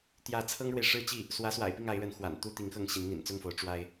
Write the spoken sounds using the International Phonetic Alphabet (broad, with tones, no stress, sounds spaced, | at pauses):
t̪ j ä˥˩ t͡sʰ ɤ˥ ŋ ɻ w e˨ ɪ̯ ʂ ɻ̩˥ t͡ɕ i˥˩ | s w ä˧˥ s w a̰˨˩ ɪ̯ p i˥˩ ŋ a˧˥ ɪ̯ ɻ ə˧˥ n x w a̰˨˩ n t̪ u˥ t̪ i˧˥ ŋ x ɤ˥˩ ŋ ɕ i˧˥ n n̪ ḭ˨˩ n t͡s ʊ˥˩ ŋ f o˧˥ ʊ̯ ʈ͡ʂ w a˥ ɪ̯